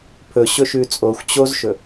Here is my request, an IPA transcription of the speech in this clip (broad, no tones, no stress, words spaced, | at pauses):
pʰɵɕɵ ʃʉt͡sʼoxʷ t͡ɕozʃɵ